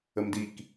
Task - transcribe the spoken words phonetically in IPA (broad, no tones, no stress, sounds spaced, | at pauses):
ə m d i k